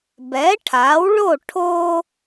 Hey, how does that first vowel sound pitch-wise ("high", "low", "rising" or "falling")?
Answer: rising